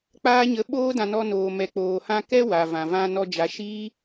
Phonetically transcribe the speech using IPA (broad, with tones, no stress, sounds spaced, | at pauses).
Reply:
k͡p aː˦ ɲ ə˧ ɓ oː˦ d ã˧ n ɔ˧ n oː˨ m ɛ˨ k͡p oː˨ h ã˧ k ɛ˦ w a˨ v ã˨ v ã˧ n ɔ˧ d͡ʒ a˨˦ ʃ iː˦